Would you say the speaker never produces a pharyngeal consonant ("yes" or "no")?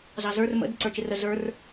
yes